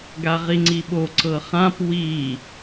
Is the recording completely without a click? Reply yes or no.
no